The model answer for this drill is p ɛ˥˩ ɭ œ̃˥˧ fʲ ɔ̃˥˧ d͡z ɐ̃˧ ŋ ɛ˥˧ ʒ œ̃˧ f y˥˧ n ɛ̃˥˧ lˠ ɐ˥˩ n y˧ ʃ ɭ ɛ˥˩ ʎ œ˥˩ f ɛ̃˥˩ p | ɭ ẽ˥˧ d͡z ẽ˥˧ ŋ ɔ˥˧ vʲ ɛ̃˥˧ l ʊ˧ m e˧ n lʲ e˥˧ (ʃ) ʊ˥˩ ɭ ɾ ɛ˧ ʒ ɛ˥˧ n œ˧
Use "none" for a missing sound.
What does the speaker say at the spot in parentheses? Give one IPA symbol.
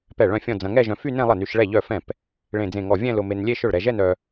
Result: ʃ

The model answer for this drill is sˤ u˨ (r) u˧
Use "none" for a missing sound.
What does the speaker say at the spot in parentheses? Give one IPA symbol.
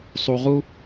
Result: ʁ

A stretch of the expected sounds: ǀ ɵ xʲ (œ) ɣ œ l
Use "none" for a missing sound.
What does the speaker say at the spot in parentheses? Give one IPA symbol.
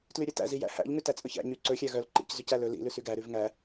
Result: æ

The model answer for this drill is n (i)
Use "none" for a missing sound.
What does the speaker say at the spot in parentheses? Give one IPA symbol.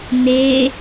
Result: e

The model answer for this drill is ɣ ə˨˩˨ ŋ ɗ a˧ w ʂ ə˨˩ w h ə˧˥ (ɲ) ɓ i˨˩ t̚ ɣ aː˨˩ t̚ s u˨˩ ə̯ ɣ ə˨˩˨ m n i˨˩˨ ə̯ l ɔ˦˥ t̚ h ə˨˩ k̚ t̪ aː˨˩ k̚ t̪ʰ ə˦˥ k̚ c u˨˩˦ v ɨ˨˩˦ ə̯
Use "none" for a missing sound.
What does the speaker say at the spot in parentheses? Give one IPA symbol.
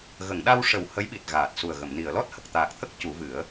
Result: j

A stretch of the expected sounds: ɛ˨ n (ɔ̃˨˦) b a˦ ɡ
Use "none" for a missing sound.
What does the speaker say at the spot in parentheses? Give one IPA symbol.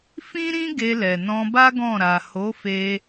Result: ɔ̃˧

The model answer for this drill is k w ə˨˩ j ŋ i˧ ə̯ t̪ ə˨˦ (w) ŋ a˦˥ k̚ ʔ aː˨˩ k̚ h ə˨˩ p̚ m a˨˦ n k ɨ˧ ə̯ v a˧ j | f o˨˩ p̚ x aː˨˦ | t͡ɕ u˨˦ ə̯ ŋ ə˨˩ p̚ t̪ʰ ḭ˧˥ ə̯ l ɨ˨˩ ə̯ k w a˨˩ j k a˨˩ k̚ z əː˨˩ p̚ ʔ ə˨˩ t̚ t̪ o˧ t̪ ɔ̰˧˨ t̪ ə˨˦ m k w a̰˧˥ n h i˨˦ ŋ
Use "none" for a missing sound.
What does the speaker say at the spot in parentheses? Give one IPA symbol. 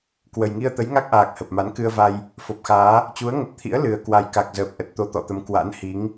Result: j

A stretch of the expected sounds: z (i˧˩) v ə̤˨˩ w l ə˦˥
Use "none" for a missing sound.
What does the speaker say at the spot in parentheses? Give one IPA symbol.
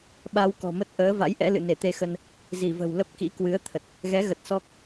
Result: i˧˩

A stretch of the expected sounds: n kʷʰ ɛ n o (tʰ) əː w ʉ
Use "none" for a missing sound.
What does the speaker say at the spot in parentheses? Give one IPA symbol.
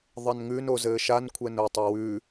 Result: tˤ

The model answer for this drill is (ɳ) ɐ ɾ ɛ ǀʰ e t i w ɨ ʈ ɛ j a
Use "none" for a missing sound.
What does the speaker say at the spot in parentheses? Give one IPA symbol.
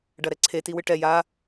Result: ɖ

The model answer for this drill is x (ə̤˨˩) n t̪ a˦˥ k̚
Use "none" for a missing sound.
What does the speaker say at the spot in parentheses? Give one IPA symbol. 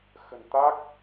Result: ə̤˨˩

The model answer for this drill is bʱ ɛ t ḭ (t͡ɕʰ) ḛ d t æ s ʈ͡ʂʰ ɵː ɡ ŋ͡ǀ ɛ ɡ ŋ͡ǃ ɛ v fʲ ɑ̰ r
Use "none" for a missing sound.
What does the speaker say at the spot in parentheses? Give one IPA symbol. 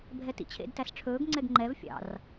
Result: t͡ɕʰ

